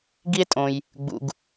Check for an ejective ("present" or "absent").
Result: present